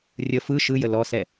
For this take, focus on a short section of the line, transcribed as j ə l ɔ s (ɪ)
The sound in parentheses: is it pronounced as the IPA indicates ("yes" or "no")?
no